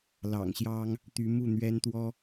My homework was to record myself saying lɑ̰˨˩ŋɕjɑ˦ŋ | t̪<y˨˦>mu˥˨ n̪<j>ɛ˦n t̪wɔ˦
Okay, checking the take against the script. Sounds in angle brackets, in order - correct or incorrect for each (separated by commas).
correct, incorrect